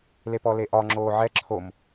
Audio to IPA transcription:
lepɔleʔɒ ŋ͡ǁoːʕɛ ǁʰom

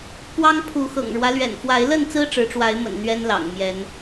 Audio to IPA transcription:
pwɑ˦ŋ pʰu˨˦xɤ̰˨˩ŋɻwä˦ lɥɛ̰˨˩nfwa˨˦ɪ̯lə˥˨nt͡sɹ̩˦ ʈ͡ʂɻ̩˨˦ʈ͡ʂwa˨˦ɪ̯mə̰˨˩n n̪ɥɛ˦nlɑ̰˨˩ŋmjɛ˨˦n

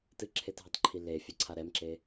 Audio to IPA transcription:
tɨǁʰetɦɨtˤǃʰi lefʲɛǀʰa ɾɛmǁe

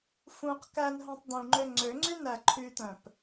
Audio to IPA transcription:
fũq kænɦœ̃tˤ d̪ũŋ͡ǃø ŋ͡ǀøŋ͡ǀy næǃʰyt̪œ̃p

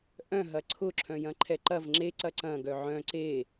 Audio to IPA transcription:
ʔœ̃ɦɐ ǀʰʊ ǁʰœ̃jɐ̃ǃʰɛǃɐv ŋ͡ǁeǀɐ ǀɐ̃ɡœ ʕœ̃ ǀe

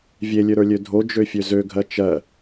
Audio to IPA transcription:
vʲelʲøɾə˞lʲø dʱod͡ʒøfʲø zøɡʱɜ t͡ʃɜ

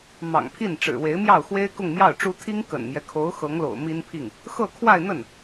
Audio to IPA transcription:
mɑ̰˨˩ŋpʰi˥˩n ʈ͡ʂɻ̩˨˩we˧˥ɪ̯mjɑ˥˩ʊ̯xwe˥ɪ̯ kʊ˥˧ŋmjɑ˥˩ʊ̯ʈ͡ʂu˥ t̪ʰi˥ŋkə̰˨˩nmjɛ˦kʰo˧˥ʊ̯ xɤ˧˥ŋlo̰˨˩ʊ̯ mi˥npʰi˥˩ŋ | xɤ˥˧kʰwa˥˧ɪ̯n̪ə˥˩n

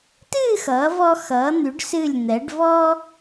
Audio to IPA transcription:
tɨː˥˧xʌː˩˧vɔ˧ xʌː˩˧n̪y˩˧ɖsɨ˧˩lʲn̪ɛ˩˧ɖ vɔ˥

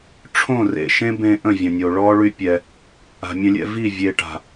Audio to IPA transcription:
ʈ͡ʂʰõ˦˨ rḛ˨ʃẽ˦bẽ˧ ʔə̃˦˨vʲə̃˨nʲo˨ ɭɔ˦ɭy˦pʲɛ˧ | a̤˨mʲə̃˧lʲɛ̰˧ vi˦˨ vʲe˨ʈa̤˨

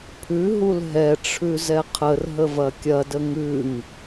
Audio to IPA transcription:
pʰʉɦul ɦɛʈ͡ʂʰʉ zɛqʰər ɦəvɐkʲɐdə ŋʉŋ

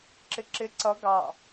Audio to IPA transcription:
ǁɪǁɪ ǀʌ ɡɑ

